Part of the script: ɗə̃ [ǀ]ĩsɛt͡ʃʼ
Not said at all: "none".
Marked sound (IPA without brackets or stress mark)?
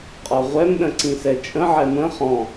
ǀ